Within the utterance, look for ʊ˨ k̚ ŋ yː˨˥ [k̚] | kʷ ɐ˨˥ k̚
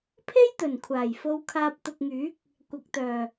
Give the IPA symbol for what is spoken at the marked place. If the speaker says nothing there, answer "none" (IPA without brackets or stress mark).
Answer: k̚